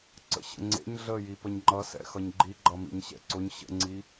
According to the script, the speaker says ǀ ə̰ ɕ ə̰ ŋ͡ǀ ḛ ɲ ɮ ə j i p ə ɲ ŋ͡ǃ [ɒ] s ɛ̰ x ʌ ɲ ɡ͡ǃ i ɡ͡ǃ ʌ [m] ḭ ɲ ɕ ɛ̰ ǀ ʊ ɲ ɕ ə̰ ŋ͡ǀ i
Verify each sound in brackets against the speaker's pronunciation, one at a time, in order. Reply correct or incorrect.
incorrect, correct

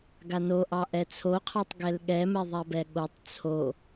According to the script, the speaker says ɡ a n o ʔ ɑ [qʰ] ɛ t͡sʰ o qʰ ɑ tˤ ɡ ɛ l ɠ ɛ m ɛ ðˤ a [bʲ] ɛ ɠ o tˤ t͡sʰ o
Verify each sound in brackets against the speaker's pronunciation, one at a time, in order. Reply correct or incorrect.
incorrect, incorrect

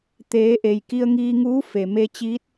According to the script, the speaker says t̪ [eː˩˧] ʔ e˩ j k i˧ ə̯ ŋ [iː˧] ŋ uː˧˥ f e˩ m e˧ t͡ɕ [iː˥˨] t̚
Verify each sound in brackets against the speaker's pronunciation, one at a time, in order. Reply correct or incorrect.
correct, correct, incorrect

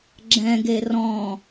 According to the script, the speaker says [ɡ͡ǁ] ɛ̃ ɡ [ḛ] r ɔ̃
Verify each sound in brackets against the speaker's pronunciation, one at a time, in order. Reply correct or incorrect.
correct, incorrect

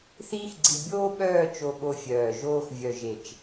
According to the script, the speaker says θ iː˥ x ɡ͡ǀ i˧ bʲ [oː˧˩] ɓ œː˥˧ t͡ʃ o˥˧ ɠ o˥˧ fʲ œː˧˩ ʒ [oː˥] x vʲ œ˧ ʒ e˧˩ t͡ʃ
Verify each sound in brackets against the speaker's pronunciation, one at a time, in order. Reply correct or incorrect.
incorrect, correct

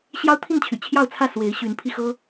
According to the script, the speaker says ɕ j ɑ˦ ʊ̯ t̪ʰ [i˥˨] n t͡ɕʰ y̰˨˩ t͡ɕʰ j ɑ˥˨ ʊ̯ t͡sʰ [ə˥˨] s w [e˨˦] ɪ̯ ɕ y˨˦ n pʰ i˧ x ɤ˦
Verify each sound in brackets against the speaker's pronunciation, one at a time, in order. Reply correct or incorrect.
correct, incorrect, correct

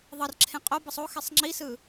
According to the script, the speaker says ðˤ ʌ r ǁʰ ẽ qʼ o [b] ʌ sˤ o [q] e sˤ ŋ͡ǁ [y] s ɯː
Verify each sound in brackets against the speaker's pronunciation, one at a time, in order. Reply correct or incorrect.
correct, incorrect, incorrect

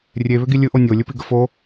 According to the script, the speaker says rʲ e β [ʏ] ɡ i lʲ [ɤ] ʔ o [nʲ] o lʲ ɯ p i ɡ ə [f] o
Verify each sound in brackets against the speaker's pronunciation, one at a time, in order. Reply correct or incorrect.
correct, incorrect, correct, correct

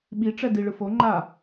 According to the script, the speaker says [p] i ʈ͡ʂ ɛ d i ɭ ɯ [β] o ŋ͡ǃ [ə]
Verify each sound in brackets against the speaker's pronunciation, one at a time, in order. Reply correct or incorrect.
incorrect, incorrect, incorrect

